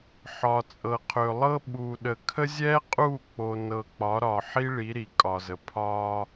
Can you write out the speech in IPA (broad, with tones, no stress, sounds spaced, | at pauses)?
ħ ɒ˨ t͡sʼ ɤ˨ qʰ ɵ˨ lˠ ɤ˦ ɓ u˨ ɗ ə˨ kʰ ə˦ zʲ ɛ˦ qʼ u˦˨ k͡p o˨ n ɤ˨ k͡p ɒ˨˦ ɾ ɒ˨ ħ i˦ ɭ i˨˦ ɾ i˨ kʼ ɒ˨ z ə˨ pʰ ɒ˦